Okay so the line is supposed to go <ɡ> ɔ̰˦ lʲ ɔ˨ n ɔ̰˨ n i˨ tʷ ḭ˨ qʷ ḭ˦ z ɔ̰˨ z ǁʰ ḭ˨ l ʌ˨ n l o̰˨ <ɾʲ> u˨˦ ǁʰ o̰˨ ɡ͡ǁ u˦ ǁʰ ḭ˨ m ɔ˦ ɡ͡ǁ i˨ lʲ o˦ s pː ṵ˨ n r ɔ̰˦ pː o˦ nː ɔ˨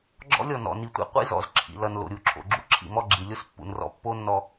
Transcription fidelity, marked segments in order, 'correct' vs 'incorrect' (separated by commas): incorrect, correct